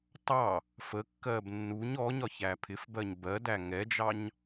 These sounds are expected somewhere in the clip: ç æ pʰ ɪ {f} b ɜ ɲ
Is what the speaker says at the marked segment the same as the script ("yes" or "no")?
yes